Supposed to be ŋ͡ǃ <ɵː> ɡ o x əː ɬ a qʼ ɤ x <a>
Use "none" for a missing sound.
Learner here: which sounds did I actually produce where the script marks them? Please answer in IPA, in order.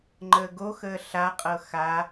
əː, a

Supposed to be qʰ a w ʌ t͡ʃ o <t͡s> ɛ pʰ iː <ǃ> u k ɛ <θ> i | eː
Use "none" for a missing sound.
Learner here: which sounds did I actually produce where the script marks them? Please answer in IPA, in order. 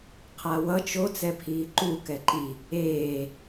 t͡s, ǃ, ǃ

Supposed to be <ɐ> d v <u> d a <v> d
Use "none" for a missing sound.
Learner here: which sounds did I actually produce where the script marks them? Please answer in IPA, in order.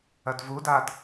ɐ, u, none

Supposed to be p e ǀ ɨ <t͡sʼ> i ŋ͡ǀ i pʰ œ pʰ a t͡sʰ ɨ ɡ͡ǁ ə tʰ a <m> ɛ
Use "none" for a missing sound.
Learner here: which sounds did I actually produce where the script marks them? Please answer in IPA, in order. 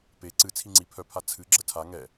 t͡sʰ, ŋ

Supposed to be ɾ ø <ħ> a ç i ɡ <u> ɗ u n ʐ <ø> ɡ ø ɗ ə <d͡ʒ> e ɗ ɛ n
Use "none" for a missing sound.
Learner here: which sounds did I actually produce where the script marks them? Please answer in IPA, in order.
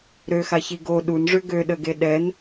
x, o, ø, ɡ

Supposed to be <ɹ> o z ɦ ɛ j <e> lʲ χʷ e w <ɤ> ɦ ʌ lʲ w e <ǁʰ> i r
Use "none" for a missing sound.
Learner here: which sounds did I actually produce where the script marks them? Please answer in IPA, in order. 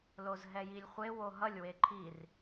l, i, o, ǃʰ

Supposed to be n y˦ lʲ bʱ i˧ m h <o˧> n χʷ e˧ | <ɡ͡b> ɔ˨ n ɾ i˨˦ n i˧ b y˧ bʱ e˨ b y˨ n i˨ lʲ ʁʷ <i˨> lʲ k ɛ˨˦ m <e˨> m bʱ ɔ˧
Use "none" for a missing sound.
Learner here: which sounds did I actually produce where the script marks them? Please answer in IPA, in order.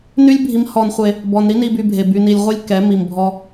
ɔ˧, b, i˧, i˨

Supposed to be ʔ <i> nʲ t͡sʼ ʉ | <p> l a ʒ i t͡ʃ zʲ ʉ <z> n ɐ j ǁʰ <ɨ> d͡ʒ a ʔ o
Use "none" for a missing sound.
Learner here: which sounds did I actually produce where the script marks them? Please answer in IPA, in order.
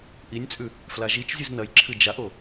i, f, z, ɨ

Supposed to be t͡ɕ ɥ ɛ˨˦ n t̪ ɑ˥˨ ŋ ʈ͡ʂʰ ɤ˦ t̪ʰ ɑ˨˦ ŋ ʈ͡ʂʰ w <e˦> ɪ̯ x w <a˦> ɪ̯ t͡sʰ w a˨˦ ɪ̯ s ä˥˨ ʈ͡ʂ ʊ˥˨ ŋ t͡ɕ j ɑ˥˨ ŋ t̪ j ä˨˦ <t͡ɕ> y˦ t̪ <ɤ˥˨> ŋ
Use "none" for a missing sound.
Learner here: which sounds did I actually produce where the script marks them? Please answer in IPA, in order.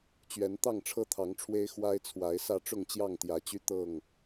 e˦, a˦, t͡ɕ, ɤ˥˨

